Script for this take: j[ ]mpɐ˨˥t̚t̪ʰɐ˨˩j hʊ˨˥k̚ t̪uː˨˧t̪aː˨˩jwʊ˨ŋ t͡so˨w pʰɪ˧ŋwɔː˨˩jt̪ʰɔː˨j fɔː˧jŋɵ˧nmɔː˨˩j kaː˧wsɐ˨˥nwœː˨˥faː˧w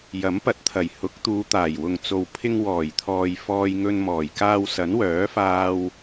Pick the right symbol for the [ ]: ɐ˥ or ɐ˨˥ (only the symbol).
ɐ˨˥